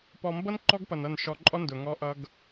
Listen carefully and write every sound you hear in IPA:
pɔ˨mbʌ˦n ǃɔ˦ɡpʌ˨nʌ˦˨n ʃɔ˨ ǃʼɔ˦ndʊ˨ ŋɔ˦ʔʌ˦ɡ

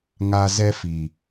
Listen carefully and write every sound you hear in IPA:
ŋa˦ zɛ˦fi˨

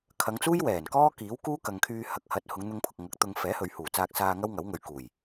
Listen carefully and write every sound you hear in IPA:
kʰɐ˨˧ŋt͡suː˥j wɛː˨˩nkɔː˥ kiː˨˥wkuː˥kɐ˨ŋkʰyː˧ hɐ˨˥k̚ hɐ˨˥t̚hʊ˨˧ŋn̪ʊ˧ŋpʰʊ˨k̚ ŋɐ˨˥k̚t̪ʊ˧ŋ fɛː˨˥hɵ˨ɥhuː˨˩t͡saː˧k̚ saː˧ ŋɐ˥wŋɐ˨˥wŋɵ˨˧ɥkuː˨˩j

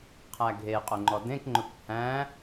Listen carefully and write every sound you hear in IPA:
qʰæɡʱe qʼɵŋ͡ǃɔdẽk ŋ͡ǃɵkʷhæ̃

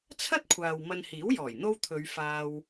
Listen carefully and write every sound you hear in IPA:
t͡sʰɐ˥t̚kʷʰaː˨w mɐ˧nhiː˨˥wjɔː˨˩j n̪o˥wt̪ʰɵ˨˧ɥ faː˧w

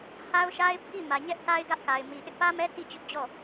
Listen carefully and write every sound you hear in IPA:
ha˦ʊ̯ʃa˦ɪ̯pʰi˦˨ mä˨ɲɛ˦ʔta˦ɪ̯ ɡä˦ʔka˨ɪ̯mi˨ ʔɪ˦ʔpä˦mɛ˦ ti˦˨t͡ɕʊ˦ʔd͡ʑɔ˦˨

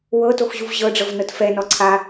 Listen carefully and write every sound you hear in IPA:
wɤtoxʑuv ʑɤɖ͡ʐɤvnɤt fɛnɔ ǀʰa

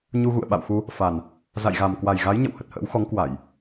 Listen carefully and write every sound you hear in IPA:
ɲu˧ɣṵ˧˨ə̯ɓa̰˧˨wxu˧ | fa˨˩n | za̰˧˨jɣa˨˩m kwa˨˩jɣa˨˦jɲə̰˧˨w hə˨˩t̚hə̰ː˧˥w xɔ˨˦ŋkwa˧˩˨j

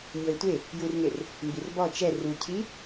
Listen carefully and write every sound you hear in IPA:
ɲɤɪ̯tʷe | jurŋer | mbirbɔ t͡ʃɛ rucʰi

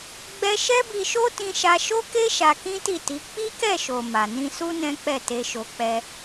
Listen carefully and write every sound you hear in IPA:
ɡ͡bɛ˦ ʃɛ˦bi˧ʃo˦ tĩ˧ʃa˧ʃo˦ke˦ ʃa˧kĩ˦ti˦˨ti˨˦ k͡pi˦kɛ˦˨ʃo˨ ma˨ nĩ˧su˦ nɛ̃˦k͡pɛ˦˨ te˧ʃo˧ k͡pɛ˧

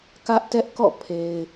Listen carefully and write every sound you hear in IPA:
kä˦ʔtɛ˦ʔkɔ̰˦˨ pʰe˨ɪ̯

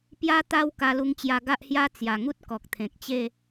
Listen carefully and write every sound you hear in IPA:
pja˦t̪a˥˧w ka˧lu˧ŋt͡ɕja˧ ɡa˦ʔhja˦ t͡sja˨˩ŋu˦t̚ kɔ˨k̚t̪ʰẽ˨k̚t͡ɕe˥˧

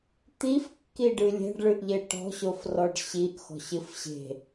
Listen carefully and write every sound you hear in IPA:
t̪ifkːiɖɨ lʲɛ̤ɖɭɨʔʎe ʈɔ̤ɕofrɔɖ ɕiʔxɔ̤ɕɨf ɕe̤

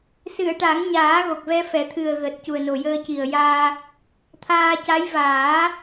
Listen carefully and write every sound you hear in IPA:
sɨ˨˩˨ə̯ʈa˨˩˦ŋɲaː˨˩˦ ɣo˨˩k̚vɛ˧fɛ˨˩˦t̪ʰɨ˨˩ə̯ ɣəː˨˩t̚cu˨˩ə̯no˨˩jəː˧ ci˨˩ə̯jaː˧ | t̪ʰaː˧ca˧˥j vaː˨˩˦

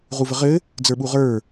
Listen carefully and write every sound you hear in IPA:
ʁuvəʁɘ | d͡zə˞ɓuʁə˞

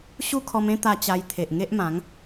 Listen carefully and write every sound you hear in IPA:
ɕu˦kʰɔ˧mẽ˦ t̪a˧t͡ɕa˧j t̪ʰe˨ʔŋe˦ʔmã˨˦ŋ

